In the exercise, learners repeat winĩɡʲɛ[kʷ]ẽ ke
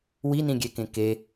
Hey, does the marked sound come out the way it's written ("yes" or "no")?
no